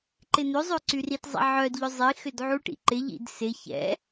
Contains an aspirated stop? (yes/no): no